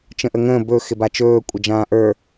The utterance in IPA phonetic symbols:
t͡ʃ ə̃ ʔ ə ŋ ə̃ː b ɵ x ɪ b a t͡ʃ ɵː kʷʼ ə d͡ʒ ãː ʔ ə˞

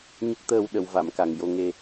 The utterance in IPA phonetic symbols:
ɲ ə˦˥ k̚ t̪ əː˧ w ɗ ə˨˩˨ w v a˨˩˨ m k a˨˩ ŋ j o˧ ŋ e˧

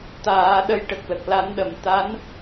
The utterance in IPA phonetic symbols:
t̪ aː˨˩˦ ɗ ə˧˥ j ʈ ə˨˩ k̚ l ə˨˩ k̚ l a˨˩˦ n ɗ ə˨˩˨ m t̪ a˧˥ n

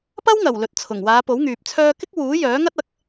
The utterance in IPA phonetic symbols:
p ɐ˥ w ŋ ɐ˨˩ w l ɵ˨ t̚ t͡sʰ ʊ˨˩ ŋ w aː˨˧ p o˨˥ w ŋ yː˨ p̚ t͡sʰ œː˧ k ɪ˥ k̚ w uː˨˥ j œː˨˥ ŋ ɐ˥ t̚ ɐ˨˥ k̚

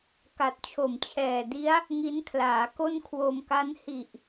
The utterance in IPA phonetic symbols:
k a˨˩ t̚ t͡ɕʰ o˨˩ m t͡ɕʰ ɛː˨˩ d i˦˥ a̯ | ŋ i˦˥ n kʰ l aː˩˦ k o˥˩ n kʰ w o˧ m k a˦˥ n h i˨˩ ʔ

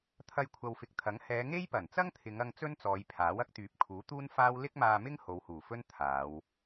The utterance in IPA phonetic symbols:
t̪ʰ ɐ˧ j kʷʰ ɐ˨ w f ɪ˨ k̚ t̪ʰ ɐ˨˥ ŋ h ɛː˨˧ ŋ e˥ j p ɐ˨˩ n t͡s ɐ˥ ŋ t̪ʰ ɪ˨˧ ŋ ɐ˧ ŋ t͡s ɵ˥ n t͡s ɔː˨˧ j pʰ aː˨˥ w ɐ˥ k̚ t̪ yː˨˥ p̚ kʰ uː˨˥ t̪ uː˥ n f aː˥ w l ɪ˥ k̚ m aː˧ m ɪ˥ ŋ h o˨˧ w h uː˨˩ f ɵ˥ n t̪ʰ aː˨˧ w

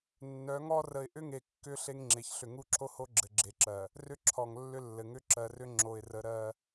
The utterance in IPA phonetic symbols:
nː œ˨˦ ŋ ɔ˦ r ə˨ ɪ̯ ʔ ʏ˦ ŋ e˨ kː ʏ˦ ɬ e˦ ŋ ŋ͡ǁ e˨ ç ɬ ʏ˨ ŋ u˦˨ ǁʰ o˦ h o˦ ɡ͡ǁ ɘ˨ ɡ͡ǁ e˨ ǁ ɜ˨ | r ʏ˦ ǁʰ ɔ˨ ŋ lː ʏ˦ lː ɘ˨ ŋ ʏ˦ ǁ ɜ˨ r ʏ˦ ŋ͡ǁ o˨ ɪ̯ r ə˨˦ ɾ ɜ˦

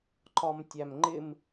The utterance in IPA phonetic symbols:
ǃ ɒ m tʲ æ m ŋ͡ǃ ɪ m

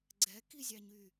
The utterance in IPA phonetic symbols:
ɡ͡ǀ ɛ k i zʲ ɑ ɲ y

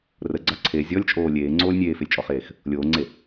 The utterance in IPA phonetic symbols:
r ə ɡ͡ǀ ɑ ǀʰ e zʲ ɔ lʲ t͡ʃʼ oː lʲ eː ŋ͡ǀ oː lʲ nʲ eː f e lʲ t͡ʃʼ ɔ χ eː x | lʲ oː ŋ͡ǀ e

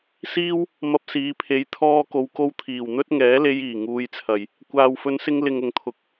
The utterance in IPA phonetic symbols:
s iː˥ w | m ɐ˧ p̚ s iː˨˧ pʰ e˨˧ j t̪ʰ ɔː˥ k o˧ w k o˥ w t̪ʰ iː˨˩ w n̪ ɵ˥ t̚ ŋ ɛː˨˥ l e˧ j iː˨˩ ŋ uː˨˧ j t͡sʰ ɐ˨˩ j | kʷ aː˨ w f ɵ˨˧ n s ɪ˧ ŋ l ɪ˨ ŋ ʊ˨ ŋ t̪ʰ ʊ˨ k̚

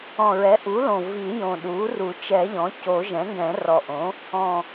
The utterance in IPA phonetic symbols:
ɔ̃˨˩ ɹ ɛ˩˥ ʔ u˩˥ l õ˨˩ v i˨˩˦ j õ˨˩ ɗ u˩˥ r u˨˩˦ t͡ʃ ɛ˨˩˦ ʎ ɔ̃˩˥ c o˨˩˦ ʒ ɛ̃˩˥ ŋ ɡ ɛ̃˨˩˦ r ɔ˨˩ ʔ õ˩˥ | ɔ̃˨˩

